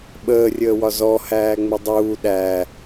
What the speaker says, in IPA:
ɓəːrʲəːwɒ zɔ hæːŋ͡mɪdˤuː ɗæ

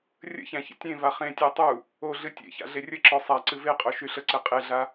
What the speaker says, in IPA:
rʲə̰çæ̃ çə̰tʲẽva χẽtʲæ tˤu | oɮɨ tʲḛça̰ ɮerʲəǁɔ sˤaǀɨ veqʼo ʃyɬəǀe qʼeɮa

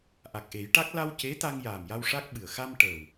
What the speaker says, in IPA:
ʔa˨˩k̚ʔe˨˩˦jʈa˦˥k̚ la˧w ce˧˥t̪a˧ŋ jaː˨˩mja˧w ʂa˦˥k̚ɓɨ˨˩ə̯ xa˧m ʈəː˨˩w

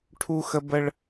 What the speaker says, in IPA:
ʈʰu˦xə˦ bə˦ɭ

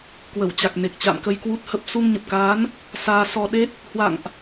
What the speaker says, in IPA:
kwə˧˩wt͡ɕa˨˩k̚ne˨˩k̚ t͡ɕa̰˧˨mkə˧jkwu˦˥t̚hə˦˥p̚ su˧ŋ ɲə˨˩p̚kaː˨˦n | saː˧sɔ˧ ɗe˦˥t̚ | hwa̰˧˨ŋʔ

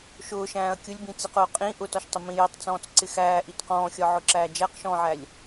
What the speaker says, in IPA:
ʃʊː ʃæ̃ːɐ̯kʲʊlʲbĩt͡siq ʊːqʼĩ ʔʊtɒʃtˤɪ mĩjitˤt͡sɔ̃ːt͡s ǀɪxæːʔit qɔ̃ːxʲɒʕʊǁæː d͡ʒæqʃɔ̃ːʕælʲ

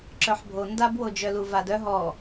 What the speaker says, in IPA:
ǁœħbʱo ndabwod͡ʒœ luvadœ ɦɔ

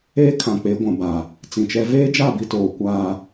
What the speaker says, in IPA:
eː˦ kʰã˨k͡pe˨˦ɡʷã˨ba˨ | t͡sĩ˨t͡ʃɛ˦ veː˦d͡ʒa˦˨ bi˦toː˨ kʷaː˨

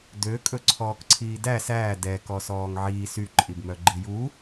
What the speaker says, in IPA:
døkʼɵ ǀʰɔːkǀʰiːdæ sæː dɛ kɔsɔːŋʕiːs yǃʼibmœ ɡ͡ǃiju

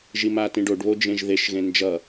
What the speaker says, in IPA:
ʒimatĩɖoɖ βod͡ʒẽʒðeʃ ɣẽnd͡ʒʌ

